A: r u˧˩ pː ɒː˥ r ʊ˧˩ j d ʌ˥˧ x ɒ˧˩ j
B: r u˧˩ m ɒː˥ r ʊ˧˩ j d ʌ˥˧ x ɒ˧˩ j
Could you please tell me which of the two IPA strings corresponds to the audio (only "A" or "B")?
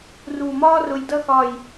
B